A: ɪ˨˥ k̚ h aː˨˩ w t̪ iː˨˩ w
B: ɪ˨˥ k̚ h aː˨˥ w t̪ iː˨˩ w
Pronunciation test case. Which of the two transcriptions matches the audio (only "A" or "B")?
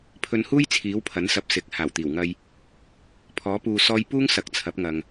A